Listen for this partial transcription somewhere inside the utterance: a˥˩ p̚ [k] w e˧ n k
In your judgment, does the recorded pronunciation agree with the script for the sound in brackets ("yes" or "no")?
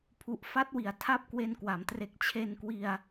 yes